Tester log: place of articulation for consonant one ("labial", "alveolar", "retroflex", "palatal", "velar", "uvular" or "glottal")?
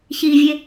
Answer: palatal